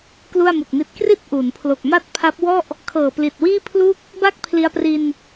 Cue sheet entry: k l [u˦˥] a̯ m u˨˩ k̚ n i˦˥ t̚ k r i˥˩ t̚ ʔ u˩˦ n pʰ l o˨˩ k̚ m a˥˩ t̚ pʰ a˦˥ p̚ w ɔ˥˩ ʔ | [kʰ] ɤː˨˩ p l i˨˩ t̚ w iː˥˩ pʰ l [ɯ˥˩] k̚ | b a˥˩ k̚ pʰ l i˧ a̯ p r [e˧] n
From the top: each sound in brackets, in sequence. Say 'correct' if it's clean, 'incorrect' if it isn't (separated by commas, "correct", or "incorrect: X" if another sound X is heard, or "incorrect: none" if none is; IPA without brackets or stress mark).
incorrect: u˥˩, correct, incorrect: u˥˩, incorrect: i˧